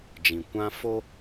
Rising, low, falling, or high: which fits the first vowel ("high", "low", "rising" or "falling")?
low